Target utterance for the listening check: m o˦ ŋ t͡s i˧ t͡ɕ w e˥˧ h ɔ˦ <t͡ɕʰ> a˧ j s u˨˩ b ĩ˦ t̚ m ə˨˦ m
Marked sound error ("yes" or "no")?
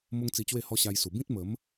yes